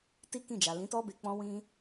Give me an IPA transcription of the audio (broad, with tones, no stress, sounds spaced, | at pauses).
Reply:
t i˦ k ĩ˦˨ d͡ʒ a˨ l ĩ˨˦ t ɔ˦ b e˧ k͡p ɔ̃˦ w ĩ˦